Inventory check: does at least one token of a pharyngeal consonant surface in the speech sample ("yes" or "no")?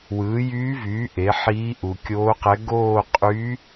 yes